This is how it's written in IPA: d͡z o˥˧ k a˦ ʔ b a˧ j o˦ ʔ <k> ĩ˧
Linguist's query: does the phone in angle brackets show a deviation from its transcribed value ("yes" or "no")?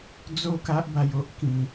no